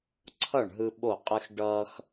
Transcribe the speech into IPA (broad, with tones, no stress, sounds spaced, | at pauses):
ǀʰ ʌ˥˩ ɳ ɦ ɯ˧ ɓ o˥˩ qʼ ɪ˥ x ɖ ʌː˥ x